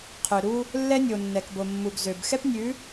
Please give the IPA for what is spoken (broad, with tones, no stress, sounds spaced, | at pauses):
qʰ ø˨ ɾ u˧ | lː ɛ˦ nʲ o˨ nː ɛ˨ k b o˨ mː u˨ ɡ z ø˨ b x ɛ˦ p nʲ ʉ˨˦